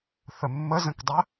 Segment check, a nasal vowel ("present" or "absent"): present